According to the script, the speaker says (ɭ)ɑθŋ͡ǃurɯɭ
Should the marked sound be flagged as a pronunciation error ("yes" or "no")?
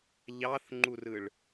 yes